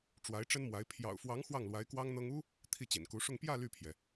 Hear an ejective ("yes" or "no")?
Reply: no